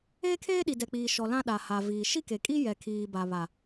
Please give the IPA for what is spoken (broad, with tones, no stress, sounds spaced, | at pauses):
eː˦ kʰ eː˦ ɗ i˨ d ɛ˨ k͡p iː˨ ʃ ɔ˨ l ã˦ ɗ a˨ h a˨ v iː˨ ʃ i˦ k e˨ kʼ i˦ j ɛ˨ kʰ iː˨ b a˨ β a˨